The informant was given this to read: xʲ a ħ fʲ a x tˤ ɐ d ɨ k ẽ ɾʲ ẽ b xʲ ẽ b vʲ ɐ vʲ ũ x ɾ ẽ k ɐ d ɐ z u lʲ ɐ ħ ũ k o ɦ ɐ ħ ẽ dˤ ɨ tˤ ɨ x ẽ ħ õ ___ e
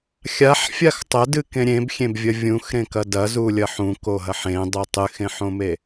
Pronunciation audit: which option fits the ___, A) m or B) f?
A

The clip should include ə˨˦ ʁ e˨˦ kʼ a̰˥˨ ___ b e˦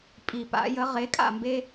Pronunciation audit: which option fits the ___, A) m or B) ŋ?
A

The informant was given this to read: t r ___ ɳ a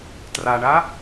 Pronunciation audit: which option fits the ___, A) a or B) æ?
A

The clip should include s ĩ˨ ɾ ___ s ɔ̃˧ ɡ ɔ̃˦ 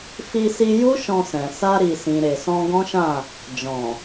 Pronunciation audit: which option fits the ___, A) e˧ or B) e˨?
B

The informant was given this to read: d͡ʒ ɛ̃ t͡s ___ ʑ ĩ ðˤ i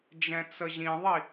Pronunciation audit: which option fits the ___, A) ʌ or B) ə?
B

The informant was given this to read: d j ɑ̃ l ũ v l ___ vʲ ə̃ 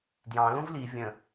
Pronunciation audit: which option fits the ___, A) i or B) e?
A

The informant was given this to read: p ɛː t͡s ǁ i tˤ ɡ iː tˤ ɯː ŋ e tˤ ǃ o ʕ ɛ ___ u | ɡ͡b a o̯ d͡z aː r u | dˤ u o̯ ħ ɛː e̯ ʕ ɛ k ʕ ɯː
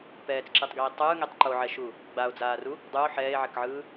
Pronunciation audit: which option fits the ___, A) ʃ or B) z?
A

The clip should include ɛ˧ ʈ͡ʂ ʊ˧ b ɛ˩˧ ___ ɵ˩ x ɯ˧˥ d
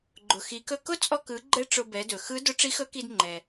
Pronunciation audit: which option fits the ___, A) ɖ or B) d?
B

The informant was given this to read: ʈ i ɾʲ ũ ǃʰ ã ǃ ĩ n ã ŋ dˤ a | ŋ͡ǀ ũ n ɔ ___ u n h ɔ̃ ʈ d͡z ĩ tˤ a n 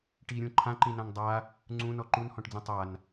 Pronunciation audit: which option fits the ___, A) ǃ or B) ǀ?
A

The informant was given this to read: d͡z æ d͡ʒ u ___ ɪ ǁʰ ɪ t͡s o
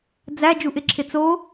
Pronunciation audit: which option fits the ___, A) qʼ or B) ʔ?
B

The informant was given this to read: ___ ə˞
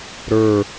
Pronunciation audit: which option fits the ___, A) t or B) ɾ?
B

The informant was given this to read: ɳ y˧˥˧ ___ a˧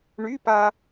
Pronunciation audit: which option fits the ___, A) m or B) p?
B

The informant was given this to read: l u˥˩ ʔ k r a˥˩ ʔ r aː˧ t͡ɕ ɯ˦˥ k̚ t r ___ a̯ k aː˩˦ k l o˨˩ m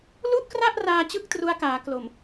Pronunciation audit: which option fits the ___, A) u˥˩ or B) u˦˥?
B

